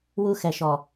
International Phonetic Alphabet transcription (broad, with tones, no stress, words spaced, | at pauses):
wu˦xɛ˨ʃɔ˨